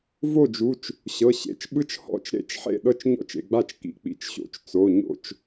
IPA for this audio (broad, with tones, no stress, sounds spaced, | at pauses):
v o˥˩ d͡ʒ u˩˧˩ t͡ʃ | ɕ ɤ˩˧˩ ɕ ḛ˩˧˩ t͡ʃ ɓ ɯ˥˩ t͡ʃ h ɔ̰˥˩ t͡ʃ ɾ ḛ˥˩ t͡ʃ ħ ḛ˥˩ ɗ ɤ˥˩ t͡ʃ ɲ ɔ̰˥˩ t͡ʃ ḛ˩˧˩ ɡ͡b a˥˩ t͡ʃ k ḭ˩˧˩ k͡p ḭ˩˧˩ t͡ʃ ɕ o̰˩˧˩ t͡ʃ t͡s o˩˧˩ ɲ o̰˥˩ t͡ʃ